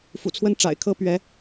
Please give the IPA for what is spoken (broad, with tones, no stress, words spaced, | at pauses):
fṵ˨˩t͡sʰwə˥˩nʈ͡ʂa̰˨˩ɪ̯kʰɤ˥ pɥɛ˧˥